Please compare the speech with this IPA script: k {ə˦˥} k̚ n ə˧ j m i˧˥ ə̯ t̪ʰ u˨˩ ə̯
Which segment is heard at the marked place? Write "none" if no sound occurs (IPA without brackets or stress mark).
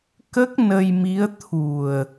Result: ə˦˥